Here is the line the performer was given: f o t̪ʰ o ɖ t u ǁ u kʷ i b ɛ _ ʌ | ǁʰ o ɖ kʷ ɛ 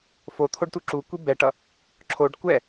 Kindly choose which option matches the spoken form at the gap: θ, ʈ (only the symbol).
ʈ